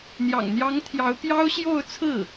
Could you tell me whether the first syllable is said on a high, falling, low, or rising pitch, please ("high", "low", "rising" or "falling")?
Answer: low